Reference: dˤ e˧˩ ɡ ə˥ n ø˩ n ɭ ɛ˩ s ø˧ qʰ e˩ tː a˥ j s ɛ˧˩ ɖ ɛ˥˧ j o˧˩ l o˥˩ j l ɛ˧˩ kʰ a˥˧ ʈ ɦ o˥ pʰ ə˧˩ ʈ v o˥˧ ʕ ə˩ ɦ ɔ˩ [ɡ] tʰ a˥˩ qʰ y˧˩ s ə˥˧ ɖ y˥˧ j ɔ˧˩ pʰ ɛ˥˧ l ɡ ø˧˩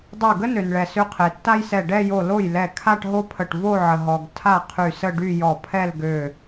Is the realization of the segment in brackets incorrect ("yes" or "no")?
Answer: no